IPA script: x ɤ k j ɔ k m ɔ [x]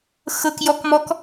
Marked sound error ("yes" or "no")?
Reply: yes